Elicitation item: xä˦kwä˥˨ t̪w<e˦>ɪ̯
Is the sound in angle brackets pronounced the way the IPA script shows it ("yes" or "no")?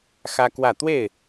no